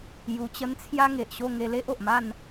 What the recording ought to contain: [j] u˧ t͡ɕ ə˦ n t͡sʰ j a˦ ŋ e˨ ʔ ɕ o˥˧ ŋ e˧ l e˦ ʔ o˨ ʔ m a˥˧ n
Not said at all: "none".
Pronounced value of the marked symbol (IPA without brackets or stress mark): j